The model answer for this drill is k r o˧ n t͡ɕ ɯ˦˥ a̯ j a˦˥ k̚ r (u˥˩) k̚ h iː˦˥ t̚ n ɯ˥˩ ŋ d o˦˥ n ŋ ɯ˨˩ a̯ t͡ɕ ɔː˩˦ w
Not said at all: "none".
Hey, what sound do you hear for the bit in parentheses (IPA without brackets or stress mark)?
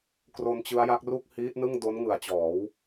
u˥˩